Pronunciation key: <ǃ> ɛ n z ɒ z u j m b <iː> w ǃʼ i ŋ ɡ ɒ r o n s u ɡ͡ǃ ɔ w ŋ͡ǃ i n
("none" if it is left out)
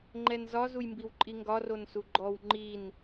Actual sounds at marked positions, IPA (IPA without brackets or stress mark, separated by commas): ŋ͡ǃ, i